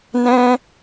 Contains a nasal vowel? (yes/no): yes